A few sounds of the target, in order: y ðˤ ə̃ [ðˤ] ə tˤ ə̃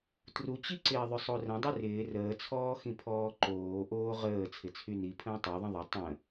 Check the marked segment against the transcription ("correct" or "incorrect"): correct